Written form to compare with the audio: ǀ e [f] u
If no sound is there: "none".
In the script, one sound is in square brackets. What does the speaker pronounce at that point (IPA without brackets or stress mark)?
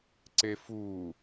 f